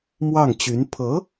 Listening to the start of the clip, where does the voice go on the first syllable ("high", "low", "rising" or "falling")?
falling